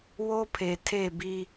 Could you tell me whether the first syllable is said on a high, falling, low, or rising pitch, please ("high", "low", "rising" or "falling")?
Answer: high